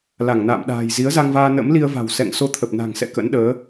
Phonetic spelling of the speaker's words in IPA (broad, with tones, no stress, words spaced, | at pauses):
la˧˩ŋna̰ː˧˨mɗa̤ː˨˩j zi˨˦ə̯za˧ŋvaː˧ nə̰˧˥mli˧ə̯va̤˨˩w sɛ̰˧˨ŋ so˧t̪ʰə˨˩p̚na̤˨˩ŋsɛ̰˧˨ kə̰˧˥nɗəː˨˦